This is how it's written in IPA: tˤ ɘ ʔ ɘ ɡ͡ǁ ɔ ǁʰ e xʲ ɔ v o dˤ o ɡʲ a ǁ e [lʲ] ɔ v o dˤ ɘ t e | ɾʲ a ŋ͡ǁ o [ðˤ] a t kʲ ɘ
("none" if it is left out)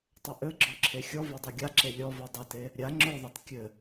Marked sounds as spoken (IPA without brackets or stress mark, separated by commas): lʲ, ðˤ